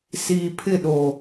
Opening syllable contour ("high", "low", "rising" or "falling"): low